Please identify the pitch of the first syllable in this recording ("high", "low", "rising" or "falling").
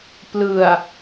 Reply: low